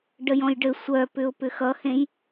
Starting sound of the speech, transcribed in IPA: ɖ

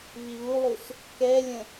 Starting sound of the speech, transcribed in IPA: β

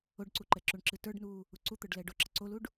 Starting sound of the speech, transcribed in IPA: o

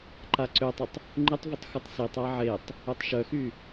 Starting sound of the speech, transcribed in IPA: ǃ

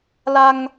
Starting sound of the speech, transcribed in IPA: l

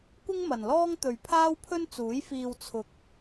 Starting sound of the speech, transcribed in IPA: kʷ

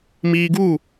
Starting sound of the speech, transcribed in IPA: m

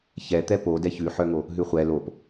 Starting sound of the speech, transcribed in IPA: ç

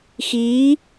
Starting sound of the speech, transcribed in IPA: x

